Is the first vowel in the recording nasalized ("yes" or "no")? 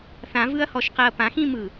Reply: yes